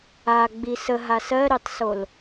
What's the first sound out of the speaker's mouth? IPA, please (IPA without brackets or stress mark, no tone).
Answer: a